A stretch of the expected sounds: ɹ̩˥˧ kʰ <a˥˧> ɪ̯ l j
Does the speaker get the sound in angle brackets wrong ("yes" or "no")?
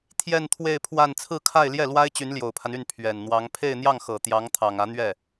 no